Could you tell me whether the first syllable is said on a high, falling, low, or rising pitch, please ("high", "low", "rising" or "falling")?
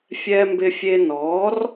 high